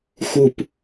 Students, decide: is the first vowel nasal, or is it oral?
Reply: oral